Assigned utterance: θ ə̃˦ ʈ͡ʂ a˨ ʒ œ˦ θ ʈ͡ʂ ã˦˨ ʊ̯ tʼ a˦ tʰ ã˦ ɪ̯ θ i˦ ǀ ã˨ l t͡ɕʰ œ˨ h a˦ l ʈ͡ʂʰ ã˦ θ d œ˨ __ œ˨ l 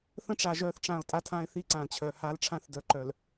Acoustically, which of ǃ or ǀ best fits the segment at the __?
ǃ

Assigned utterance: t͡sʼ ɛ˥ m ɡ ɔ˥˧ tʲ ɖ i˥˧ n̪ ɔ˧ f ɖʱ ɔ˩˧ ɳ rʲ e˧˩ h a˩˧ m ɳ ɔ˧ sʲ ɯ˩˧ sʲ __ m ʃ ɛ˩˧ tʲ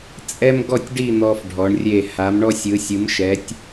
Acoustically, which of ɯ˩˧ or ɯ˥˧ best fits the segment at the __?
ɯ˩˧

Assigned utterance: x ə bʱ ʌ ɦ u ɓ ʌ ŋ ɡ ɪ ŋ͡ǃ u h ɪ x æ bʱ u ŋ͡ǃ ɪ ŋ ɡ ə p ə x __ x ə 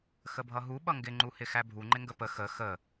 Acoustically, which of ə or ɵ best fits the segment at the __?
ə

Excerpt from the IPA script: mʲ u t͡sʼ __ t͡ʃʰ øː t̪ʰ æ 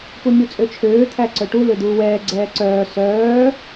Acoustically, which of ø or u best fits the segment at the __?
ø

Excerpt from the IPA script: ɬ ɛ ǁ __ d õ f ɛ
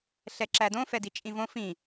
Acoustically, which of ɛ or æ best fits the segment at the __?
æ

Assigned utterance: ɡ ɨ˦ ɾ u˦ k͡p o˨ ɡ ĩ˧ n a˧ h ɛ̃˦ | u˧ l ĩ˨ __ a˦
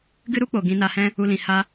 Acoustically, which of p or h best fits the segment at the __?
h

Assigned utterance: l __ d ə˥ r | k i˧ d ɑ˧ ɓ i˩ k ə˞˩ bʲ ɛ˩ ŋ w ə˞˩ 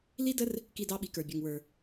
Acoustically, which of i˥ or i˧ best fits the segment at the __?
i˥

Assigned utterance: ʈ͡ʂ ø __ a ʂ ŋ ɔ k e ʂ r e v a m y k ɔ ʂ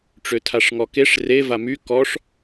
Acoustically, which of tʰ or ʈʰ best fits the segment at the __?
tʰ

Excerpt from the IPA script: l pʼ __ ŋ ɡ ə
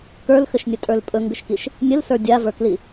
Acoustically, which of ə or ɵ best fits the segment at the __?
ɵ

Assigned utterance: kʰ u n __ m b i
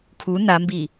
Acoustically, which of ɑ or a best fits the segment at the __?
a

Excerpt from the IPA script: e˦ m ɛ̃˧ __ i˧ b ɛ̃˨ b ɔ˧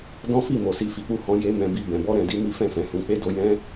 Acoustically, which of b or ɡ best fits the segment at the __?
b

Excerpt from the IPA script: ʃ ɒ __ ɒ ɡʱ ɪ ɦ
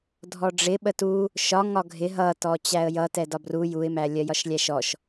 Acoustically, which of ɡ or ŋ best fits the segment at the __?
ŋ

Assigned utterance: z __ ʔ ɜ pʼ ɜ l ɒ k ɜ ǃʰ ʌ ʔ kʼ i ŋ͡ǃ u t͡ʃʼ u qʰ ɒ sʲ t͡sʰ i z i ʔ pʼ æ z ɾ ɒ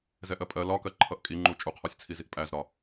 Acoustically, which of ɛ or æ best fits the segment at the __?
ɛ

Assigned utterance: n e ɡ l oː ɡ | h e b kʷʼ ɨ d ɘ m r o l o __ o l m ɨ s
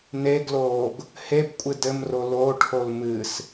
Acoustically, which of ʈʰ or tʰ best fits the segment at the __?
ʈʰ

